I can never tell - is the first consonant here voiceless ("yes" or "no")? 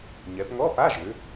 no